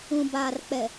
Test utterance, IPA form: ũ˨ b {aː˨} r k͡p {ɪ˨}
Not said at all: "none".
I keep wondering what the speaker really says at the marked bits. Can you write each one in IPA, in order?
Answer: aː˨, ɛ˨

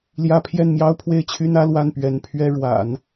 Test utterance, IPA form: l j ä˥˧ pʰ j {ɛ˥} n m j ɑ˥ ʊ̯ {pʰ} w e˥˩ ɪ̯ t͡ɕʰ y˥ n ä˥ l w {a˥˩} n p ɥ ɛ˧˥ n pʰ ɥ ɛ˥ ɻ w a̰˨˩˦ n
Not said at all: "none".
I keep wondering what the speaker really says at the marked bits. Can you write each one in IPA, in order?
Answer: ɛ˥˩, pʰ, a˥˩

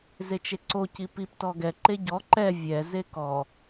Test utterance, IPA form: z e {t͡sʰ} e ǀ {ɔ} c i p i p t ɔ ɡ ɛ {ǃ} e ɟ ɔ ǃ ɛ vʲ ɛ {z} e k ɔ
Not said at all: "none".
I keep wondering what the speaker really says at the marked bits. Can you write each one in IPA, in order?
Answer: t͡ʃ, o, ǃ, z

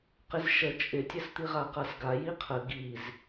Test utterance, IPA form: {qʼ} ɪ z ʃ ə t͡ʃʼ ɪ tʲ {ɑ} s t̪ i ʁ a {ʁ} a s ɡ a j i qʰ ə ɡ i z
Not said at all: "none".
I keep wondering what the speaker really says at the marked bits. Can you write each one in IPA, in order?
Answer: q, ə, q

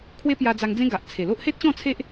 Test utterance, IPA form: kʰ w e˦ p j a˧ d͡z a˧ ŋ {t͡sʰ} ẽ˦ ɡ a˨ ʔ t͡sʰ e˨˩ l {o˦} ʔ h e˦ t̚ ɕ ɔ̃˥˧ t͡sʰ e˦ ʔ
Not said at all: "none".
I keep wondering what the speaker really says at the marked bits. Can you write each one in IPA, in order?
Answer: d͡z, o˦

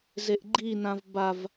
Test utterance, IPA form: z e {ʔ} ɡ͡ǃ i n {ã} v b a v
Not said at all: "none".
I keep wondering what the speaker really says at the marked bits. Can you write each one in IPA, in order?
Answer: ʔ, ã

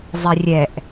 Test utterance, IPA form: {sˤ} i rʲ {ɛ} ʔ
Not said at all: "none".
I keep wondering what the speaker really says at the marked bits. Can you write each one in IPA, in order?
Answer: zˤ, ɛ

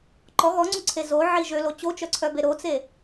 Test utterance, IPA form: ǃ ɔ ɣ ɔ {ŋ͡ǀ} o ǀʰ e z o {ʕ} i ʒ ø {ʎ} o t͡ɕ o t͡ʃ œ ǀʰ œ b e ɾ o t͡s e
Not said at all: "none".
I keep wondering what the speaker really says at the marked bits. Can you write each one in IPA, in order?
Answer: ŋ͡ǀ, ʕ, l

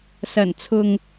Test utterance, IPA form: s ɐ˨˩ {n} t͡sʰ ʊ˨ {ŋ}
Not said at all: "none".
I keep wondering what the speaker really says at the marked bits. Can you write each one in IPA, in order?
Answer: n, ŋ

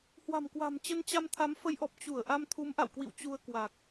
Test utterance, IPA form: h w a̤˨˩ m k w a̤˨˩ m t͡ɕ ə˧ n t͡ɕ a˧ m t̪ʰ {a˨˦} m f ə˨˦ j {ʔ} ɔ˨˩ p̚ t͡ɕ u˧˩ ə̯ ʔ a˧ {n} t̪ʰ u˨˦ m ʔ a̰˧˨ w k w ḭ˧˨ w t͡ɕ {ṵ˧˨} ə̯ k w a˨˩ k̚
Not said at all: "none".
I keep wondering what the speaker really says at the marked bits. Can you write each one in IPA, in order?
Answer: a˨˦, ʔ, m, u˧

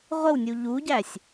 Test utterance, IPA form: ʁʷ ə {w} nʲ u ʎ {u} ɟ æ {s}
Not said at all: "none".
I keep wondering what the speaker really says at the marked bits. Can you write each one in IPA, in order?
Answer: w, u, sʲ

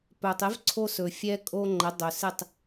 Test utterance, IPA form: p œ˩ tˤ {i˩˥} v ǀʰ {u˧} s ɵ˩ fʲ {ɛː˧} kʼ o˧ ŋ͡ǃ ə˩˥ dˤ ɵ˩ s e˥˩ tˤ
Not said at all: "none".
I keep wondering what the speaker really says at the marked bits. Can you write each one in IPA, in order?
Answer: e˩˥, o˧, ɛ˧

